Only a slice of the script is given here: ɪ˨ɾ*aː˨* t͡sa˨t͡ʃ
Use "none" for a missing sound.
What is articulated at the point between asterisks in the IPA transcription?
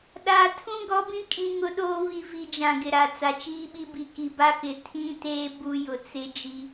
a˨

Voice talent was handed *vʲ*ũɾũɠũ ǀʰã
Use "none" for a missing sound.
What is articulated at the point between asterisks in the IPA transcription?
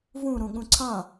v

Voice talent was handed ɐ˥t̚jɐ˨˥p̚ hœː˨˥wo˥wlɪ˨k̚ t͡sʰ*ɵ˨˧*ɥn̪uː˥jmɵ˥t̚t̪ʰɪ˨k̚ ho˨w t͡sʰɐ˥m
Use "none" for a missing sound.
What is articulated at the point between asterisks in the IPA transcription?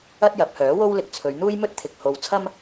ɵ˨˧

